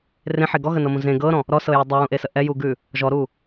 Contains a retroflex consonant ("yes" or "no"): no